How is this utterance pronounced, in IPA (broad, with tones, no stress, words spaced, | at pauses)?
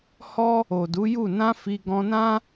hɔ˦ | o˨du˨˦ju˦˨ nã˧ fi˧ɡɔ̃˧nã˦